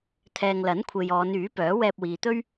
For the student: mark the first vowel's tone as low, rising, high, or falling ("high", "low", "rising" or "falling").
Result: low